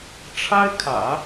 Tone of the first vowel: high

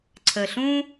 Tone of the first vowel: low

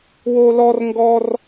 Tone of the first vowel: high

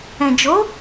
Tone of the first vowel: low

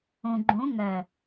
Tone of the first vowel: low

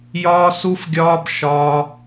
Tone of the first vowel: high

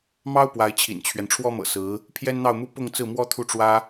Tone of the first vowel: high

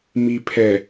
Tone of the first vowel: low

